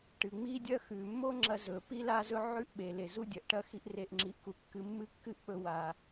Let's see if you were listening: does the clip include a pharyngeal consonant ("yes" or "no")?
yes